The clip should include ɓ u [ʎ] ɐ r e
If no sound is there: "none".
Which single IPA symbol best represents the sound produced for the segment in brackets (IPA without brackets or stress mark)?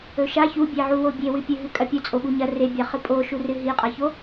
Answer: ɲ